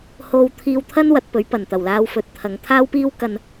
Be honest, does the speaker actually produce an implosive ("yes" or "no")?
no